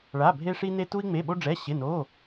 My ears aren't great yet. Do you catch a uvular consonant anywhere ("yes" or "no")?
no